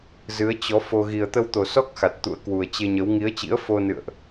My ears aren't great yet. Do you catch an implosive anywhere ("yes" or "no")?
no